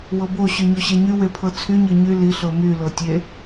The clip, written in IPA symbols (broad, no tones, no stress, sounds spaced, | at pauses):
w ɤ b o ɕ y ɲ o ɕ e ɲ y w e pʰ ɤ t͡sʰ y ɲ ɤ ɲ y l i ɬ ɤ m y l ɤ tʲ e